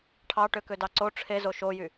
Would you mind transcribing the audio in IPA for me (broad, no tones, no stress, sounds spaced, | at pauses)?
ʈʰ ɑ ʈ ø k ø d ɑ ǀ o ʈ͡ʂʰ e z o ʃ o j y